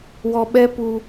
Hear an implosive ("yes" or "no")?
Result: yes